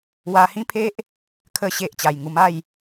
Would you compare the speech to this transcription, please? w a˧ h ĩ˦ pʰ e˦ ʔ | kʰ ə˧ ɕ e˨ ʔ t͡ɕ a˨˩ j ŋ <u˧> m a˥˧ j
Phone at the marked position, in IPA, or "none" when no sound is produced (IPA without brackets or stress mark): u˧